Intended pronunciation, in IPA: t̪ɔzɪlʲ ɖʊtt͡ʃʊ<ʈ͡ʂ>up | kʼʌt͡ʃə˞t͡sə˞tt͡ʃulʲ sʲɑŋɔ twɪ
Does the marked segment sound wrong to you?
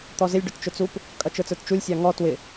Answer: yes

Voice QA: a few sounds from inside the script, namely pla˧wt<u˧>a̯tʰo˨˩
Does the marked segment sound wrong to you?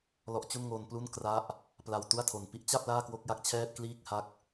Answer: yes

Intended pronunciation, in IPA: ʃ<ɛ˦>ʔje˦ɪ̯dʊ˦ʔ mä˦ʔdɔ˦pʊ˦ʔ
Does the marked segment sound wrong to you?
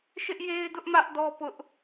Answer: yes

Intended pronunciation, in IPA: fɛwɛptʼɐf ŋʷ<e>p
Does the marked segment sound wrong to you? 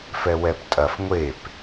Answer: no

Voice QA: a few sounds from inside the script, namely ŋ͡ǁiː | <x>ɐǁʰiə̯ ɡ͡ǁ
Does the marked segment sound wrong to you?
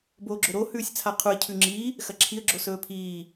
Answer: no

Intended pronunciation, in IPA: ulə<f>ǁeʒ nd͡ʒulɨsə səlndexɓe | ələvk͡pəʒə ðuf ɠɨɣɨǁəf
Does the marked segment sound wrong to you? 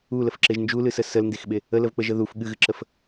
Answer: no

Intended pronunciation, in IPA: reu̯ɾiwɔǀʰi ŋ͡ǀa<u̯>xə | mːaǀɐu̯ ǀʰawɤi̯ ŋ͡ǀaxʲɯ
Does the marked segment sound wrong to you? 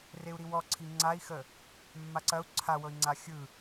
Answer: yes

